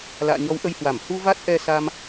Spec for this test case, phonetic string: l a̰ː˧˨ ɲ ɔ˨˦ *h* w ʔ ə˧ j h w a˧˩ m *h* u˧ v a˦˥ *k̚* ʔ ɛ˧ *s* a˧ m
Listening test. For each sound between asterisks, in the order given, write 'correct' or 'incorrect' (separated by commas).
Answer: incorrect, correct, incorrect, correct